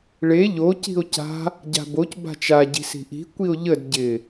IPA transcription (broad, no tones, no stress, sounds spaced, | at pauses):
ɭ e ʎ o c i̤ o̯ c a̤ | ɟ a̤ b o c b a̤ t͡ʃ a ɟ i̤ s i̤ ʔ i̤ kʷ i o̯ ʎ ə d ɟ ɪ